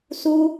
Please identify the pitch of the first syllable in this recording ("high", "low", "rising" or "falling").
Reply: high